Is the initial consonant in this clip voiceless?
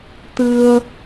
yes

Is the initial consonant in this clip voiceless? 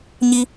no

